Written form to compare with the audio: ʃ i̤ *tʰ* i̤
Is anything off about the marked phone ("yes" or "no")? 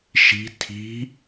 no